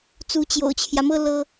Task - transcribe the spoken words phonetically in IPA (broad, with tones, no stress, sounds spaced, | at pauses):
t͡s u˧˥ t͡ɕ j o̰˨˩ ʊ̯ t͡ɕʰ j ä˦ m ɤ˥ l ɤ˥